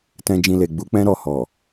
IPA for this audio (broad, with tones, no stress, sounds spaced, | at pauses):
t ɛ̃˧ d͡ʒ ĩ˧ l e˨ ɡ͡b u˨˦ k͡p ɛ̃˦ ɾ ɔ˦˨ h ɔ˨